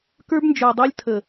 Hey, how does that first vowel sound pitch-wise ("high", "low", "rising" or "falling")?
high